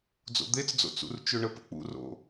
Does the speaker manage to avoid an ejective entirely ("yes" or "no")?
yes